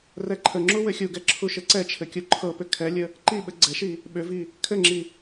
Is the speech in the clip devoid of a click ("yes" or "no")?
no